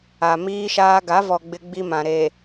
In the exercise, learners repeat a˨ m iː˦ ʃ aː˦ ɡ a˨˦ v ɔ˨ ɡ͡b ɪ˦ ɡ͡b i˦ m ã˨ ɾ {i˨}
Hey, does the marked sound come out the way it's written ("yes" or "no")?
no